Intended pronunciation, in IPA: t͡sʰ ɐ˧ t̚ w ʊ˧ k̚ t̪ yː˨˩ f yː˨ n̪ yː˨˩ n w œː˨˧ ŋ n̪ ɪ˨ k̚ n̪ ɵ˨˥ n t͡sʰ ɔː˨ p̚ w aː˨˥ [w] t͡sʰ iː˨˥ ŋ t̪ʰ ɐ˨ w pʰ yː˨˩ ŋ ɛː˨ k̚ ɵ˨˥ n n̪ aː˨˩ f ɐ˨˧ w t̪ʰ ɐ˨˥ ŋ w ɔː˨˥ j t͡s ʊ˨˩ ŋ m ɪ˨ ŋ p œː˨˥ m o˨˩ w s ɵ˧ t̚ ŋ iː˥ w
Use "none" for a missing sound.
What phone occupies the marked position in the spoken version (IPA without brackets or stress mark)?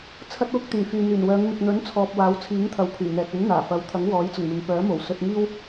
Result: w